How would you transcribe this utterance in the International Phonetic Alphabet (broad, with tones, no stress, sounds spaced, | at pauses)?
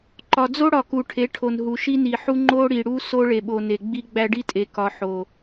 ǃ ɒ˨ d͡z o˦ ɽ ɒ˨ k u˨ ʈʰ e˨˦ ʈʰ o˨ n ɦ u˨ ʃ i˦ n i˨ ħ u˦ ŋ͡ǃ o˦ ɽ i˨ ɽ u˦ s o˦ ɭ e˨ ɓ o˨ n e˨ ɡ͡b i˦ ɡ͡b æ˦ ɖ i˦ tʼ e˨ k ɒ˨ ħ o˨